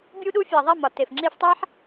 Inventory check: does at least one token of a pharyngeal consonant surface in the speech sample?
yes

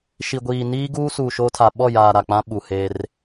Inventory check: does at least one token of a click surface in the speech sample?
no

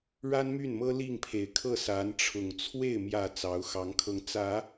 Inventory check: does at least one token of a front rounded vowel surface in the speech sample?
yes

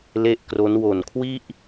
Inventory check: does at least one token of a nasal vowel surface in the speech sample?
no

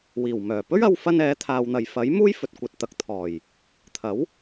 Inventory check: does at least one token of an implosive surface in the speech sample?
no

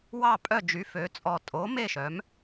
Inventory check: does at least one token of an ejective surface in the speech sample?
yes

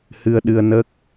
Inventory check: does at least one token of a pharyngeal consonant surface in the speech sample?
no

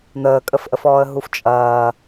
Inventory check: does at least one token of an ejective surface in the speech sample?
yes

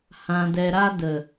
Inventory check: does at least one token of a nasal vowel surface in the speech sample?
yes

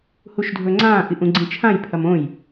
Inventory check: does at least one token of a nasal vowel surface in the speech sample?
yes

